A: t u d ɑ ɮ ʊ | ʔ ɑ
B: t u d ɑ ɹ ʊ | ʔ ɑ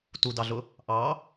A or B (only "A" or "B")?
A